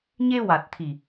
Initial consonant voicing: voiced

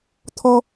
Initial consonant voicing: voiceless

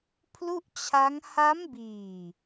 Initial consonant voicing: voiceless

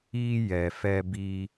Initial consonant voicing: voiced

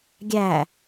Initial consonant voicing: voiced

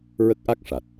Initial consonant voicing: voiced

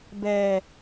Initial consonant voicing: voiced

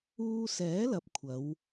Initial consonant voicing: voiceless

